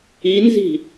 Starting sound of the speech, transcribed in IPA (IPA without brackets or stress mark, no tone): i